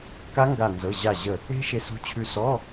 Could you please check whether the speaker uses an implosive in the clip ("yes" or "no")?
no